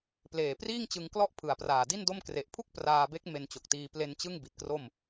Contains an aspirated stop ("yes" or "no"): yes